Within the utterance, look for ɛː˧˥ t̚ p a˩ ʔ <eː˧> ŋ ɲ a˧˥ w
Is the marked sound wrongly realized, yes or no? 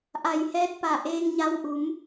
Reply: no